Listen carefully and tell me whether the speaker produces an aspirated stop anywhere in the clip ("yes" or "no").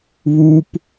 no